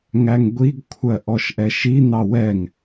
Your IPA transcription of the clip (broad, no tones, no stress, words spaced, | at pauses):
ŋæŋɡʷiɡkʷʰɜ ʔɔʃʔɛʃin̪ɑ wɛŋ